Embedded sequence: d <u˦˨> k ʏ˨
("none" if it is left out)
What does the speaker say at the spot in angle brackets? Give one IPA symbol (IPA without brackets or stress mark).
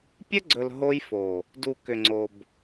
u˨